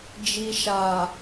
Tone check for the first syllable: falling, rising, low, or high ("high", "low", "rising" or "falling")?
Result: low